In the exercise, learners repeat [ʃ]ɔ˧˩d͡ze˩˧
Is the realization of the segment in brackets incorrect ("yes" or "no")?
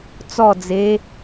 yes